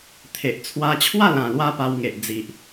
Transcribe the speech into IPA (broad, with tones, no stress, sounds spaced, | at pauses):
t̪ʰ e˨ ʔ t͡sʰ w a˧ t͡ɕʰ w a˥˧ l ã˨˩ l w a˦ p a˧ w ŋ e˨ ʔ d͡z i˨ ʔ